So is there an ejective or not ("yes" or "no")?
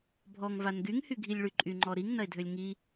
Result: yes